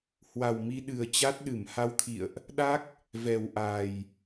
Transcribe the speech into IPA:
hwa˨˩w mi˧ɗɨ˨˩ə̯ t͡ɕa˦˥t̚ɗɨ˧˩m ha˧wt̪ʰḭ˧˨ə̯ʔ | ɗa˦˥k̚ | vɛ˨˩wʔa˨˩j

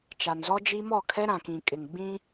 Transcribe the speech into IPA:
t͡ʃa˨nzɔ˦d͡ʒi˦ mɔ˦˨kʰɛ˦ɾã˨kĩ˨ kʼɪ˨ŋɡ͡bĩ˦

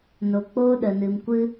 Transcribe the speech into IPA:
no˨k͡poː˧ɗə˨ nɨ˨mkʷɨ˧

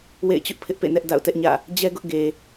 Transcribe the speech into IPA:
wḛ˦˨ɪ̯t͡ɕʊ˦ʔ pʰɪ˦ʔpḛ˦˨nɛ˦ʔ da̰˦˨ʊ̯tɛ˦ʔɲä̰˦˨ | d͡ʑɛ˦ɡʊ˦ʔ ɡe˨

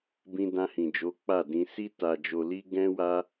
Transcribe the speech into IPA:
bĩ˧dã˧hĩ˨d͡ʒo˨˦ k͡pa˦˨dĩ˧ si˧ ta˨d͡ʒo˨li˧ ɡɛ̃˦wa˦

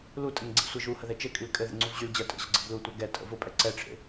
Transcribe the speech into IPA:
lutʼɘŋ ɡ͡ǀḛsʷɜʒuhə ðɛt͡ʃɘkʼyl kʼɘðə̰ ŋ͡ǀuvʑyld͡ʑɜ tʼə̰ʑə̰ ɡ͡ǀɘblutʷɜ ɡɛtʼə̰ vʊ pʼɛǀɛʈ͡ʂʰḛ

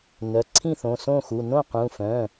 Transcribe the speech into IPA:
nœ˩˧˩ ǀʰĩ˥˩θõ˩˧˩sõ˥˩xu˩˧˩ nõ˥˩qũ˩˧˩fœ̃˩˧˩

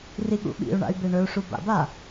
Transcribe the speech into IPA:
riɠṵɓḭu̯ɳa̰y̯ beɳɵu̯ʂu ba̰ba

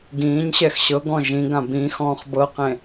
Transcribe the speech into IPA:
ɡĩːɲɕɛx ɕɤɡɔ̃ ʒĩɡã bĩxɔ̃ːχ bɤqẽ

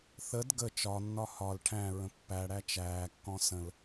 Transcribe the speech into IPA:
θəd ɡə t͡ʃɒnːɒ hɒl ʈʰæ̃ɹə̃ pːæɽæ t͡ʃæːkːɔ̃ sə̃l

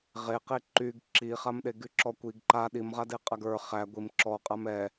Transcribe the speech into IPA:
ʁeqe ǃyɡ ǁiχamɗe ɡyǁɔkʷiɡ ǃa ɗimʁadeqʼaɡ ə˞ χæ ɡʷim ǁɔqʼam ɛ

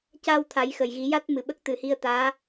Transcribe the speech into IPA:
ca˧w t̪ʰa˨˩˦jxə˨˩˨jɣi˨˩˦ ja˦˥t̚mɨ˨˩ɓə˦˥k̚ t̪ɨ˨˩˦hi˧ə̯t̪aː˧˥

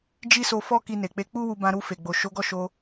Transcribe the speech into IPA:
d͡ʒi˦so˧fɔ˦ ki˧ne˨k͡pe˧ k͡pu˦wu˧ bã˧ɾu˧fe˨ ɡ͡bo˨ʃo˨˦ɡɔ˦˨ʃo˧

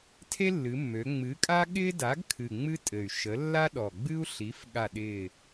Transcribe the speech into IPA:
tʰe˥lːɨ˩˧mːø˩˧ ŋ͡mɨ˨˥kʼa˥ ɠɪː˥da˨˥ɡkʰɨ˨˩ ŋ͡mɨ˥tʼɘ˨˩y̯ʃə˨˥ lːa˥ɗɔ˨˩ ɡ͡bɨ˥u̯ɬi˨˥f ɠa˦˨ɗɪː˦˨

